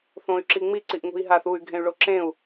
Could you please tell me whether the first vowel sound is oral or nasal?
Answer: nasal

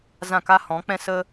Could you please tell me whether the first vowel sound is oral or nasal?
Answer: nasal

